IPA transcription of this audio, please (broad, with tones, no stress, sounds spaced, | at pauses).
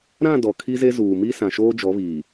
ɾ ã˦˨ d ɔ˨ kʰ i˦ z e˦ z uː˨ m i˦ s ã˨ ʃ oː˦ d͡ʒ ɔ˨˦ β iː˨